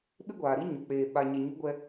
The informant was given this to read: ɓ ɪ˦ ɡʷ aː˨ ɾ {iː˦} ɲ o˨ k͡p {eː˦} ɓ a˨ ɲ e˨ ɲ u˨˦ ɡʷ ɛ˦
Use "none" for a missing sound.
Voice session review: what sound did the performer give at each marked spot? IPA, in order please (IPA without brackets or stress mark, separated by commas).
i˦, eː˨